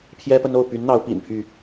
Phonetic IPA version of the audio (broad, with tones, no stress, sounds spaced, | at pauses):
pʰ j ɛ˦ p ə˦ n o˥˨ ʊ̯ p y˨˦ n n̪ ɑ˨˦ ʊ̯ p ḭ˨˩ n pʰ y˥˨